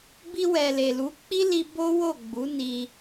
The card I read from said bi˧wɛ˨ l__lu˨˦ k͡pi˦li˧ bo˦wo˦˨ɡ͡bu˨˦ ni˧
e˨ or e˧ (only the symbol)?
e˨